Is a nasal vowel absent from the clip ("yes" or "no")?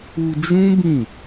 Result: no